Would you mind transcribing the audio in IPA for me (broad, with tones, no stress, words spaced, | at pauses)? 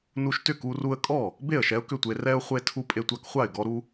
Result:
nu˧ʃtʏ˥˩ku˧ ru˧ə̯kʼɔ˥˩ | be˥˩ə̯ʃɛ˧ʊ̯kʏ˥˩tʷe˧ rɛ˧ʊ̯ χʷe˧tʰu˧ pʼe˧tʷa˧kχʷa˥˩ɪ̯ ɡɔ˧ɾu˧